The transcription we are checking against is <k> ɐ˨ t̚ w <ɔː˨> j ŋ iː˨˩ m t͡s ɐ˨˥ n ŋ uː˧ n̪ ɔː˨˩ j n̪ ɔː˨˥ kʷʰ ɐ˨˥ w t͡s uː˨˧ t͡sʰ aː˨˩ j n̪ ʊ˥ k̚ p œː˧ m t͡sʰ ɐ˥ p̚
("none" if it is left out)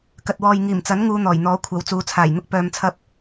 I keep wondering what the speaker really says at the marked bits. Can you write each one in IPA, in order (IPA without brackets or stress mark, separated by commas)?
k, ɔː˨